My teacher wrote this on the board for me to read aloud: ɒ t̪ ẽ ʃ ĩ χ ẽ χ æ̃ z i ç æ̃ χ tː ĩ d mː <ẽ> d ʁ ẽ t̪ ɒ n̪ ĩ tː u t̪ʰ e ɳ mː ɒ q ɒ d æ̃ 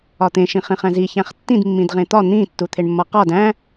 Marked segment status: incorrect: ĩ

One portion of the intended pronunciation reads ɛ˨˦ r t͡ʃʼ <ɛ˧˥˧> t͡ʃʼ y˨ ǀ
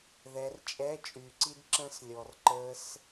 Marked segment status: correct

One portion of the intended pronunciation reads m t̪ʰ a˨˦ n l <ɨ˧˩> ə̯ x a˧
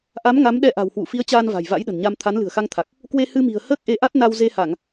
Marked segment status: incorrect: ɨ̤˨˩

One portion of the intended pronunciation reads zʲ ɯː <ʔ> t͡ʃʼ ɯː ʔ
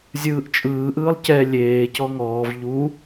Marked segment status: correct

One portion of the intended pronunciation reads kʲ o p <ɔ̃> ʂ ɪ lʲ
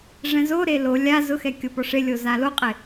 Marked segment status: incorrect: ɔ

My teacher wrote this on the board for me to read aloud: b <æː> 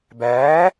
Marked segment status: correct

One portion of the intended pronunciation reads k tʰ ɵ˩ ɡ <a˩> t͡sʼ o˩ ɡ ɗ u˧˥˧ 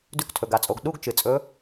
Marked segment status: correct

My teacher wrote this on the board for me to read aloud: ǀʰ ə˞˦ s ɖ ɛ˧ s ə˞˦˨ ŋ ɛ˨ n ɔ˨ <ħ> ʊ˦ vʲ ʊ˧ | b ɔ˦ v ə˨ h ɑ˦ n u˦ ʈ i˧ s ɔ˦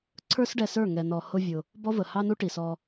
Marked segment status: incorrect: h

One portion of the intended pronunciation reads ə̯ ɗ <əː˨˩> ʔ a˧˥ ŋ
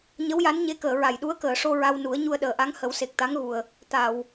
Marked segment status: correct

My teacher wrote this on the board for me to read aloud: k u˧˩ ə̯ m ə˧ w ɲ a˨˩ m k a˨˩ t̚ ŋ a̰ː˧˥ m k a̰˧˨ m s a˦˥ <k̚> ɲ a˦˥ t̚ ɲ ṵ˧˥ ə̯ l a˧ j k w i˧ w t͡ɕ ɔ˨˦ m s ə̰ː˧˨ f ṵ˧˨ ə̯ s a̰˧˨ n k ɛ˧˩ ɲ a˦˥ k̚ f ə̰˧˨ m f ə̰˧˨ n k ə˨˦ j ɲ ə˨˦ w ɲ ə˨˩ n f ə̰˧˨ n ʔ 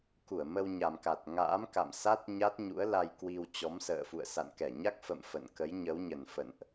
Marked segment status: incorrect: t̚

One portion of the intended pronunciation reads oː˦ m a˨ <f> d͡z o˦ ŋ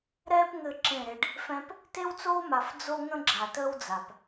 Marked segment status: correct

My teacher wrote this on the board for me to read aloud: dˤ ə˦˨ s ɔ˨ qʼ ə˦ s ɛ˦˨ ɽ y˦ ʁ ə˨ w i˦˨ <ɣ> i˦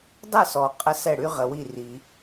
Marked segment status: incorrect: r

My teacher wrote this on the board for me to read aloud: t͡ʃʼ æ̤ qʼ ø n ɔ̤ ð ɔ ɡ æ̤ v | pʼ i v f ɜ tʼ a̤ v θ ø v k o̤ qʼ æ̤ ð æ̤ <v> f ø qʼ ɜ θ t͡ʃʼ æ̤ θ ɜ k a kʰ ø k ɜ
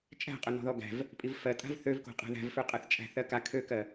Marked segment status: correct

